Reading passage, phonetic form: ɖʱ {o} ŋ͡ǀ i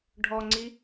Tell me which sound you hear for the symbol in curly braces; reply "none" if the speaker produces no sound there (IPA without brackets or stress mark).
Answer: ɔ